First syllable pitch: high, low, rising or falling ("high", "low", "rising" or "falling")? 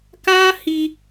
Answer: high